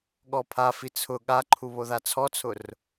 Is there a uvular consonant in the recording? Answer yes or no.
no